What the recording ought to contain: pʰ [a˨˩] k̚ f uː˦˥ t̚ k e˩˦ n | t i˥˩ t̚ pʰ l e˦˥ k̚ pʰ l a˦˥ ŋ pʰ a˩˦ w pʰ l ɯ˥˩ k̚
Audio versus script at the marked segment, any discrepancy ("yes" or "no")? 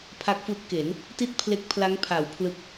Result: yes